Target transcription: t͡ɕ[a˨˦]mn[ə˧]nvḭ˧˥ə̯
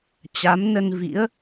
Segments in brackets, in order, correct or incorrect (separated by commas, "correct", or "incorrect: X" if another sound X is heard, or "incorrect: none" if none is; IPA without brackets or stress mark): correct, correct